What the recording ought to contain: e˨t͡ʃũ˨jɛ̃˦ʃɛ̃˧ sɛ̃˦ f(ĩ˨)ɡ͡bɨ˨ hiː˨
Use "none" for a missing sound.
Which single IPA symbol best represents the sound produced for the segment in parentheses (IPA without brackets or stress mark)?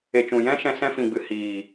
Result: ĩ˨